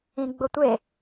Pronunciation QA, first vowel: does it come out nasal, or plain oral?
nasal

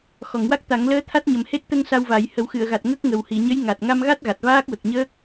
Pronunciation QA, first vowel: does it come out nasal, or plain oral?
oral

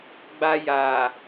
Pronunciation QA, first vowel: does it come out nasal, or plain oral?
oral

